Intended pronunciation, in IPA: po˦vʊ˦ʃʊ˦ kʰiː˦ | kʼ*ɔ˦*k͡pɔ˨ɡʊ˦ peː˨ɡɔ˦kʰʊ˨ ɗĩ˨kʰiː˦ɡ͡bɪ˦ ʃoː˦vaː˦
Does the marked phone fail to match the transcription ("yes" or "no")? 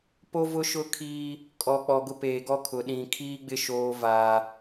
yes